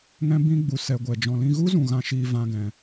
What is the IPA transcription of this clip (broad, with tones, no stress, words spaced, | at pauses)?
ŋɛ̃˦bĩ˦ ɡ͡bu˧sɛ˧ ɡʷɛ˨d͡ʒɔ̃˧ lĩ˧ɣu˦zũ˨ ɣã˧ʃiː˧ vã˧ɡɛ̃˨